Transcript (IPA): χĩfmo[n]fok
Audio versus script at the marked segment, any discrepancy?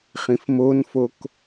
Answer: no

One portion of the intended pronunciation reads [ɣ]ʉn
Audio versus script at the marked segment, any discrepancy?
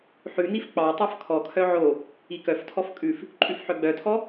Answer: yes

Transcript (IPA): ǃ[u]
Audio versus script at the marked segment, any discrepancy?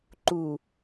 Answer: no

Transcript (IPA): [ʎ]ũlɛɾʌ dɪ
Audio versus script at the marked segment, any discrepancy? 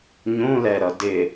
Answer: yes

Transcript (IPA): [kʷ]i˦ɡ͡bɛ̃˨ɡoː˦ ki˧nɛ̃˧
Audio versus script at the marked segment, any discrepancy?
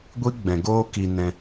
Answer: yes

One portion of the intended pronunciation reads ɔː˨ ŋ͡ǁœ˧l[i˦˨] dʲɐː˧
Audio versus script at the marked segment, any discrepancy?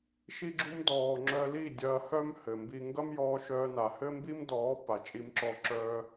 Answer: no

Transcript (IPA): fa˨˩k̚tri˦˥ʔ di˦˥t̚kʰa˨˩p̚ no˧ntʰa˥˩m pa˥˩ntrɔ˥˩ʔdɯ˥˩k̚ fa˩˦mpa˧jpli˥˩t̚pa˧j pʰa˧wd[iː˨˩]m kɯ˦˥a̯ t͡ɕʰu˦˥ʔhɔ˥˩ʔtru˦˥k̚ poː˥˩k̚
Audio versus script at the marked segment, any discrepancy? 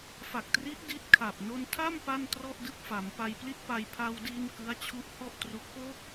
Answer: yes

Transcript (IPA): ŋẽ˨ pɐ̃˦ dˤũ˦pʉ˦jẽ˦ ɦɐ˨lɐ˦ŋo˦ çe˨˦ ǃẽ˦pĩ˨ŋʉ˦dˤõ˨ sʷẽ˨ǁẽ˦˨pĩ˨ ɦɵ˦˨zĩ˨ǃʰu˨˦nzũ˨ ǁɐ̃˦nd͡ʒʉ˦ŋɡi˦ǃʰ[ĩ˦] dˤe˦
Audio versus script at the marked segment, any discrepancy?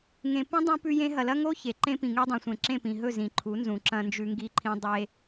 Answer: no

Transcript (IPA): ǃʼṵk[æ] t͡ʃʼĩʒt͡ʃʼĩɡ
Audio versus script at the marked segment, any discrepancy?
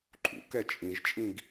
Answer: yes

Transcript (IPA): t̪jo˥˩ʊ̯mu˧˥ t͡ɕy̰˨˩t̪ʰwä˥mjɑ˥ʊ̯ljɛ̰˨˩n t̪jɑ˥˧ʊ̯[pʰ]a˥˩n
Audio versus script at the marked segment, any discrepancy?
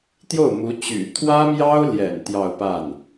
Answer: yes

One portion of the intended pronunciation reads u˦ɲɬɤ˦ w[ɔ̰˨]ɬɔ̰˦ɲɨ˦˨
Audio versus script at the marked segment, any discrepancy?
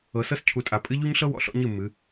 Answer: no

